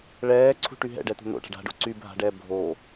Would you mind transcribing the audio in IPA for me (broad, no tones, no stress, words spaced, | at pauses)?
ɭɛː ǀʰṳʈyɦɛ̰ɖɛ t̪o̤n̪o̰ʈa̤ɖ a̤ɖo̰ ǀy bʱa̤ɖɛː bʱoː